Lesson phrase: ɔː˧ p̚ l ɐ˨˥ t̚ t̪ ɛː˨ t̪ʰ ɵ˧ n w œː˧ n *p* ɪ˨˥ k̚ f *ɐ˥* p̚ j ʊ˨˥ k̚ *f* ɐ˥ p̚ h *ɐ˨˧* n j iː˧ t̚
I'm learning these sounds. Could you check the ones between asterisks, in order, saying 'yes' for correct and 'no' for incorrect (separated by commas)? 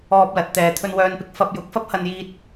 yes, no, yes, no